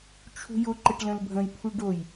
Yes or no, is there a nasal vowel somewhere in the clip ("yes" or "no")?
yes